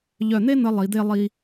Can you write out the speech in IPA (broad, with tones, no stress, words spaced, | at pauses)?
ʎœ˧˩n̪e˥n̪ə˧ lˠi˩˧d̪e˥˧ lˠi˧